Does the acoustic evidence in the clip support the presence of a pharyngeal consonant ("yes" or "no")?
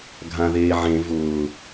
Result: yes